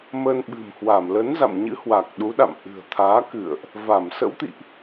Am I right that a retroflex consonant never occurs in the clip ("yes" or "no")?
yes